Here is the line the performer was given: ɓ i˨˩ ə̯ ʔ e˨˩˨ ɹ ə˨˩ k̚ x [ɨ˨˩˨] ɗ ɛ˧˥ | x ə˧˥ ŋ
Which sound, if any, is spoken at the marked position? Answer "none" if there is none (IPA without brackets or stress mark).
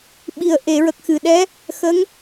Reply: ɨ˨˩˨